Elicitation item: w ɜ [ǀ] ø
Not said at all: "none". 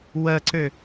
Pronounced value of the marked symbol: ǀ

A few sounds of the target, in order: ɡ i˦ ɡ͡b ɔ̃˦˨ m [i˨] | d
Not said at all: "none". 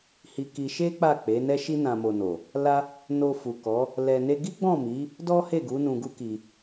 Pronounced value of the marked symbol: i˨˦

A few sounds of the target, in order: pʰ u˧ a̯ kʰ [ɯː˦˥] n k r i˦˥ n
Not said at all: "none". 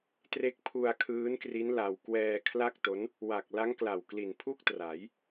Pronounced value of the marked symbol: ɯː˦˥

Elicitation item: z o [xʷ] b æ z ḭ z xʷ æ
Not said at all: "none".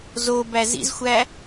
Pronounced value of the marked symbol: none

